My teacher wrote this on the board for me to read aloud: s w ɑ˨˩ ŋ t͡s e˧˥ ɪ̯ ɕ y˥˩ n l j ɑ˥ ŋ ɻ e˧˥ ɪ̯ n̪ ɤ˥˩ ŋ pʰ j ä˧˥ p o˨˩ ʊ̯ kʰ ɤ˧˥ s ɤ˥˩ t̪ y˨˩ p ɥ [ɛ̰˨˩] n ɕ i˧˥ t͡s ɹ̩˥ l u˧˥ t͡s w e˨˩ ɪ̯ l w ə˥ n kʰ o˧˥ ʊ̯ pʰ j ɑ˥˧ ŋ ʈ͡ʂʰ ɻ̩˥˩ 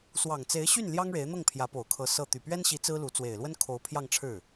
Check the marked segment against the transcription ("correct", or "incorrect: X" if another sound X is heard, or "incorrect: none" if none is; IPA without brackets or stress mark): incorrect: ɛ˥